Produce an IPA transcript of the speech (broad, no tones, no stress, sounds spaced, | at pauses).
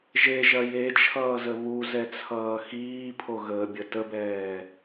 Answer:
ʒ e ʒ ɐ j e t͡ʃʰ ʌː z ə β u z ɛ t͡sʰ ʌː x iː pʰ o ɣ əː bʲ ə t ə b ɛː